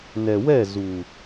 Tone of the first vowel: low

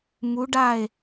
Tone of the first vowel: rising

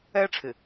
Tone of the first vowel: high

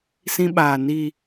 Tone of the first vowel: high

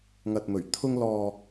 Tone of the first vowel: low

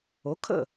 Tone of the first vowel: rising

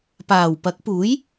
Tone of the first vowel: low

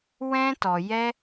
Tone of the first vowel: high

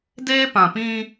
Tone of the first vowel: high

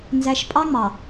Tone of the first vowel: low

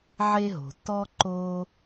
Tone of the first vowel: high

